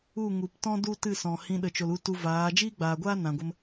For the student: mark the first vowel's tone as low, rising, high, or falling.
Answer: falling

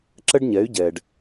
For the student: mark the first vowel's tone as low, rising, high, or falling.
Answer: high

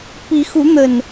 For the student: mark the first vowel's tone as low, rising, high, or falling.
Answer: rising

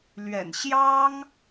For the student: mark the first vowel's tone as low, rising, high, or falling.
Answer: low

